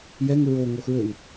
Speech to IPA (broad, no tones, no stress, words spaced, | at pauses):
jɛŋ ɹo ŋoxɹøŋ